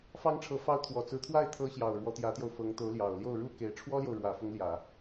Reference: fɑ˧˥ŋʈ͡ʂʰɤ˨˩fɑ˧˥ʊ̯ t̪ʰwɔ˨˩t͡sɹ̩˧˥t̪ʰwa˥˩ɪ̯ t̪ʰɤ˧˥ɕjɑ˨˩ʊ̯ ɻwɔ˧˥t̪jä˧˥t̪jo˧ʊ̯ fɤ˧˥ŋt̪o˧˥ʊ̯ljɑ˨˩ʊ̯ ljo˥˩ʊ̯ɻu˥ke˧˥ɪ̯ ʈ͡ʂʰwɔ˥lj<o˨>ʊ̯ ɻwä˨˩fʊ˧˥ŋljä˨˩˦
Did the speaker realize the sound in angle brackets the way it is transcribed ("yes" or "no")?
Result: yes